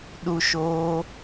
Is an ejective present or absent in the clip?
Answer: absent